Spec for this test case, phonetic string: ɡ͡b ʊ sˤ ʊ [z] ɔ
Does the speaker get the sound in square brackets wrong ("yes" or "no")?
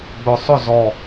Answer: no